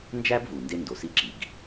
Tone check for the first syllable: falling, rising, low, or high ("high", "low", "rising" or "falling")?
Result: high